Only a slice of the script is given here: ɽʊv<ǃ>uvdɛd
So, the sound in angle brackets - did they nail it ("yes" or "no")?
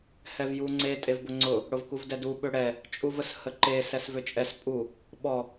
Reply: no